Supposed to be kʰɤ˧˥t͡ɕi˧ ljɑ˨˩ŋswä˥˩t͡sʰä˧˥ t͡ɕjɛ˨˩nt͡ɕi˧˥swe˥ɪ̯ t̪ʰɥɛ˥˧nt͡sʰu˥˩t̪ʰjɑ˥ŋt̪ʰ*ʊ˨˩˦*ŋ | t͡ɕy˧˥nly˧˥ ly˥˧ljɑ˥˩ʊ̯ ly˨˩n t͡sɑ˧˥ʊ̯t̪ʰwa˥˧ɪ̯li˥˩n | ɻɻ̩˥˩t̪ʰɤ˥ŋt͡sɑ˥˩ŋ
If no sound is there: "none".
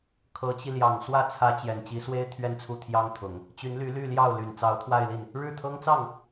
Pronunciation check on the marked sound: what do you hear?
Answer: ʊ˨˩˦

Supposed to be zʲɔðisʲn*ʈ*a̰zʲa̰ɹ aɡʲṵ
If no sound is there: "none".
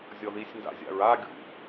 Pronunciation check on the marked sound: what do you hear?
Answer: d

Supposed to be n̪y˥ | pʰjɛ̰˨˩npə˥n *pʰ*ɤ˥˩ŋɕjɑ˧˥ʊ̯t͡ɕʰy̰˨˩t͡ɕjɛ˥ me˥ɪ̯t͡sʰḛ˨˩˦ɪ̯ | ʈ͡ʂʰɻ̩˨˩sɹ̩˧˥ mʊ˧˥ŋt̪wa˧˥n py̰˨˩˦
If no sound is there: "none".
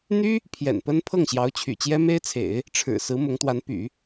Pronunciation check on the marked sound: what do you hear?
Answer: pʰ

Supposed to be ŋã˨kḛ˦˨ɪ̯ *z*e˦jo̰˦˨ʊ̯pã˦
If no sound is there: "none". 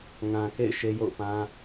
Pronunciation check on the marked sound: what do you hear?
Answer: ʃ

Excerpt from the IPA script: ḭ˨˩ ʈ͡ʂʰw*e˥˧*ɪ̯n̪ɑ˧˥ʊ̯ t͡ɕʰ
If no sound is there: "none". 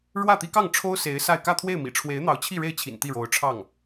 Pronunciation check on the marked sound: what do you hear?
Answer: e˧˥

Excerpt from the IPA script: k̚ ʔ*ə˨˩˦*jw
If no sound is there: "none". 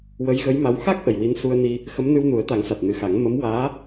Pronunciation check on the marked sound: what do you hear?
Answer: ə˨˩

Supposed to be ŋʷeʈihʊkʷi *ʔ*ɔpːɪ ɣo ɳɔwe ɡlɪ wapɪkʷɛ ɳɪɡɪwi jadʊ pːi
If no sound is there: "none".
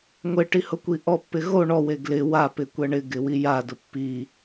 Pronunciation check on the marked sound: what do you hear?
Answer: ʔ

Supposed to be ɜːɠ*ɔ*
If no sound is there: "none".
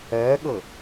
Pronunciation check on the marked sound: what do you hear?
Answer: ɤ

